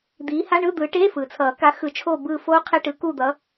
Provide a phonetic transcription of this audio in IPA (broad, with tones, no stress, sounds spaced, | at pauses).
d̪ iː˨˦ h a˧˥˧ ɳ ɯ˧˥˧ d̪ ɯ˨˦ ʈ eː˧˥˧ f ɯː˩ t͡sʰ ʌː˨˩˦ k a˨˦ x ɯ˨˩˦ t͡ʃʰ oː˦˨ b ɯː˦˨ f oː˦˥ qʰ e˧˥˧ ʈ ɯ˨˦ k u˦˨ d̪ ʌː˨˦